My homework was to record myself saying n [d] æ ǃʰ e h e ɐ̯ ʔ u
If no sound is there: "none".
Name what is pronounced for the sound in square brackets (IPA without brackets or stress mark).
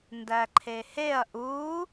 d